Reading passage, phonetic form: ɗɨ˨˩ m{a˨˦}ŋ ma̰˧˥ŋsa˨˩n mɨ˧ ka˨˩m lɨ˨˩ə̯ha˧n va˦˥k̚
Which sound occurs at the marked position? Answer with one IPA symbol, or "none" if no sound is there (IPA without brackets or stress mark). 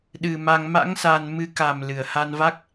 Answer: a˧